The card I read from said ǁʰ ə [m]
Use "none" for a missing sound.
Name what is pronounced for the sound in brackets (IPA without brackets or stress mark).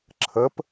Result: p